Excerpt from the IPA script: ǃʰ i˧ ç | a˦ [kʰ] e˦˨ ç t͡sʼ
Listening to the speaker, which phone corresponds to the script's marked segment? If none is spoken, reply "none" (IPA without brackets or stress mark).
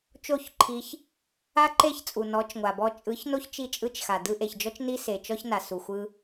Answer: ǃ